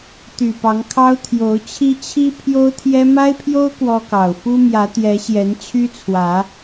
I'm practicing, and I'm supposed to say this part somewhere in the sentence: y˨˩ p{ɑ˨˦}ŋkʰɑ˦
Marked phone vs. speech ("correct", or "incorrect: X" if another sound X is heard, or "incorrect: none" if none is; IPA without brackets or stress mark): correct